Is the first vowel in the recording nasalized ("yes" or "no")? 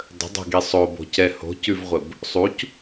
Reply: no